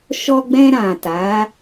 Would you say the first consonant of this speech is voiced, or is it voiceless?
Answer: voiceless